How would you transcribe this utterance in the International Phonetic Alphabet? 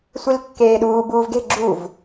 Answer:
sʷ i l kː eː ɗ uː b uː v ɡ e̤ ɡ͡ǁ u v

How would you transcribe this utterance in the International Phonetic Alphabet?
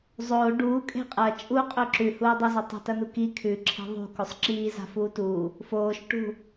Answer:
zˤ oː ɖ uː kʼ e̤ qʼ ɐ t͡ʃʼ u qʼ ɵ ǁ ʉ h uː dˤ ɵ z ɐ tˤ o̤ t ɐ n u k i kʰ ʉ ǁʰ e̤ ðˤ ṳ k o sˤ ǁ iː z a̤ f uː t uː | f oː ʃ ʈ ṳ

